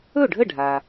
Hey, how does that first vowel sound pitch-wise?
falling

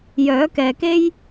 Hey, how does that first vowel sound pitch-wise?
rising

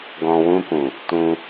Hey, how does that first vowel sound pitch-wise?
low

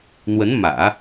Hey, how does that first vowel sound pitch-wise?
rising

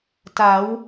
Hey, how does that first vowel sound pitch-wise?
rising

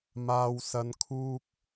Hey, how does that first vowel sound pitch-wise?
low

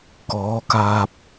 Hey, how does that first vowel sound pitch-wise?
rising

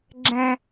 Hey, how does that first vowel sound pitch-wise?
low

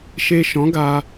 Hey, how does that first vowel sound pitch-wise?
low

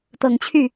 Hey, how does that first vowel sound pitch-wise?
low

